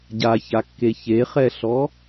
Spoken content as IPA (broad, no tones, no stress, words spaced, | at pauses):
ɟaçakːe çeχɛɬɔ